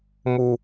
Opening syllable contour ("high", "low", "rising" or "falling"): high